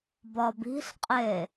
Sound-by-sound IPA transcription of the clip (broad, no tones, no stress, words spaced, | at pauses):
bɒbi̤ɬqʼe